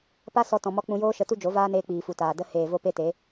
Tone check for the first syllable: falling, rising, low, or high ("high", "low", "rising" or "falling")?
high